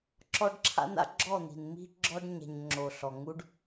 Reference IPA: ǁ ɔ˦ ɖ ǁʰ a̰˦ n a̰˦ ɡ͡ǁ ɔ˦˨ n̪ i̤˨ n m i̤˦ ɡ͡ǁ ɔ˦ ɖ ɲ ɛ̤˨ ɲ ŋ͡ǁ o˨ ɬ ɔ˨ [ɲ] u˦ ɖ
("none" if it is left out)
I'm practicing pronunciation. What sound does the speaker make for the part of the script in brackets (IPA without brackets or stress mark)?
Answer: ŋ